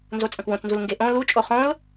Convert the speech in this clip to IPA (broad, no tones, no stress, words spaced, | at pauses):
nzot͡sʼɐ̃kwõt͡snzul ŋɡeʔõ lut͡ʃʼo χõl